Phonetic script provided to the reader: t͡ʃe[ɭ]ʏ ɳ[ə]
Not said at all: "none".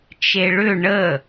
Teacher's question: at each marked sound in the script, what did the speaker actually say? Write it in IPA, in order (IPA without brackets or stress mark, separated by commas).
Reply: ɭ, ə